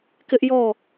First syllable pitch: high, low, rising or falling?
high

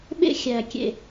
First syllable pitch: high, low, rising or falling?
high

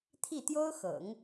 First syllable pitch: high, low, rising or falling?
falling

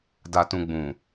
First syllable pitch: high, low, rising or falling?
low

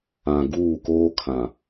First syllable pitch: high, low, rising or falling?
low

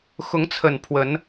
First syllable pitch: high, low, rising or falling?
rising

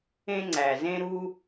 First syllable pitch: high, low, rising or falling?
high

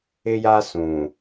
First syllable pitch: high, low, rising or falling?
high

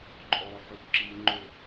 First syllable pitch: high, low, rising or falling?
low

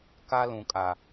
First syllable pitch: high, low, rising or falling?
high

